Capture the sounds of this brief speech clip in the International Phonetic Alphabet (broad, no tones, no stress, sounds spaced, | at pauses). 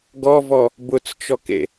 ɡ ɔ v ɔ | b ʊ t͡s t͡ʃ ɔ k ḛ